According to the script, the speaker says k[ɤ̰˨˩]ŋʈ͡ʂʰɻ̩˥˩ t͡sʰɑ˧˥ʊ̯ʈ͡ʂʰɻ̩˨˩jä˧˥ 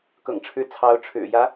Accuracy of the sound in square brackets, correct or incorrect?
correct